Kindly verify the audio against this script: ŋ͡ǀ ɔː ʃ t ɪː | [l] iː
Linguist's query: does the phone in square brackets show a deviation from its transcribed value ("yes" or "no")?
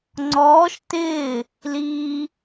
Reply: no